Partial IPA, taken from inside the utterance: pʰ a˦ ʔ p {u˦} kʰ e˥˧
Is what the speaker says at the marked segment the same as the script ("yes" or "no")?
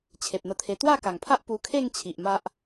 no